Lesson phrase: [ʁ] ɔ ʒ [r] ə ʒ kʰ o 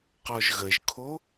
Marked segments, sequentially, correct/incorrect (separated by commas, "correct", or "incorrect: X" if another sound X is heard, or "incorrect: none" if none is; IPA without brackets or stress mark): incorrect: q, incorrect: ɣ